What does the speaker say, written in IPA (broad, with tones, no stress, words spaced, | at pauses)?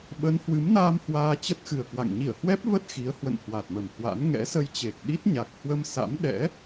ɓə˨˦n hwɨ˨˦mnaː˧m hwaː˧t͡ɕə˦˥t̚xɨ˨˩ə̯kwa̰˧˨ŋ ɲi˧˩ə̯hwɛ˦˥p̚və˦˥t̚ xi˨˦ə̯hwə̰˧˨n hwa˨˩t̚mə˨˩mhwa̰˧˥n ŋɛ̰˧˥sə˧jt͡ɕe˨˩k̚ ɗi˦˥t̚ɲa˨˩k̚hwə˧m sa̰˧˥mɗɛ̰˧˥